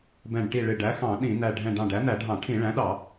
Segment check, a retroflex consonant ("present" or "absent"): present